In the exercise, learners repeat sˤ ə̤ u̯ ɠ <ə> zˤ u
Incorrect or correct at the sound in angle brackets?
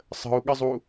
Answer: correct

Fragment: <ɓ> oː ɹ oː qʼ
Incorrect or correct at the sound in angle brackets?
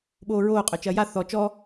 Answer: correct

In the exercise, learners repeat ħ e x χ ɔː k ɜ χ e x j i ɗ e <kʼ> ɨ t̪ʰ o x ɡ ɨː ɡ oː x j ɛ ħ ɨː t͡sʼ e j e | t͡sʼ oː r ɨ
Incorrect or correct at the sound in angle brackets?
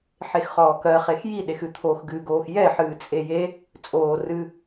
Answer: incorrect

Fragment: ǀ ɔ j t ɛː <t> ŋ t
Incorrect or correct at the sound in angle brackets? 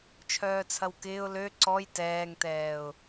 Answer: incorrect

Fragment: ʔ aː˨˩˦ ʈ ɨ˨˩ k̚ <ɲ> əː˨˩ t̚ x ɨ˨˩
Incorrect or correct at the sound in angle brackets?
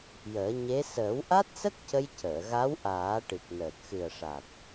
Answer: incorrect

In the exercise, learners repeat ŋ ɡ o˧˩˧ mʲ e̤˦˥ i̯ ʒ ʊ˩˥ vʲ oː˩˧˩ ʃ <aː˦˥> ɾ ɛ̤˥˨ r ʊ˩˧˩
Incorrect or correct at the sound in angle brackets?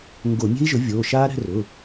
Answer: correct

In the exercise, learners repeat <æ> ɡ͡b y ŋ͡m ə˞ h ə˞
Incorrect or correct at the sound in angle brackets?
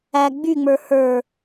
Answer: correct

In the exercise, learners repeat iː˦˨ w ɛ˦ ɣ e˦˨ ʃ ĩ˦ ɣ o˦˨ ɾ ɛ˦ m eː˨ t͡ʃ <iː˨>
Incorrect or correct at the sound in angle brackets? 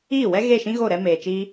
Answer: incorrect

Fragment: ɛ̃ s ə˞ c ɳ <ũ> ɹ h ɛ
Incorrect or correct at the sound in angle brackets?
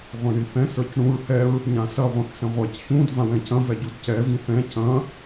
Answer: correct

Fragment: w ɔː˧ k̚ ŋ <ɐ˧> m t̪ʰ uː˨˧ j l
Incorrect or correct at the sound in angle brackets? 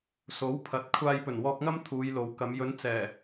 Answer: incorrect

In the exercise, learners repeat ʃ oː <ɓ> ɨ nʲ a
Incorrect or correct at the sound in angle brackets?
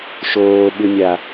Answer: correct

